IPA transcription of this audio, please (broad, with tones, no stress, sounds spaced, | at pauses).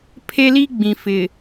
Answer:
pʰ e˦ l i˦ ɡ͡b ĩ˨ f ɪ˨